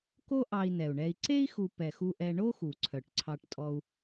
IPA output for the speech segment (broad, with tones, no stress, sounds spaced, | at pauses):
k o˦ ʔ ɑ˨ i̯ n ɛ˩ u̯ ɳ ɛ˨ i̯ ǀ e˥ i̯ x u˨ p ɛ˩ x u˨ ʔ ɛ˨ ɳ o˥ x u˩ ǀʰ œ˩ ʈ ǀʰ ɑ˨ ʈ tʼ ɔ˨ u̯